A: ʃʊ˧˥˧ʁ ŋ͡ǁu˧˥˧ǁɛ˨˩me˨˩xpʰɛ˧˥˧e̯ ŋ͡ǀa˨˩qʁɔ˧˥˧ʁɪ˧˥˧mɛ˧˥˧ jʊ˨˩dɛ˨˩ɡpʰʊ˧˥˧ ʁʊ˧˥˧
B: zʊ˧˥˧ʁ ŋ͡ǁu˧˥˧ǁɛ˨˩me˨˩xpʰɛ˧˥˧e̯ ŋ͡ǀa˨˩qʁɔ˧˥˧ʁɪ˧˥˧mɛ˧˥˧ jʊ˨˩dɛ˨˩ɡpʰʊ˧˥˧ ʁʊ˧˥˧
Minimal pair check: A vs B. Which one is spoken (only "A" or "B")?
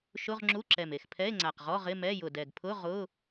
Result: A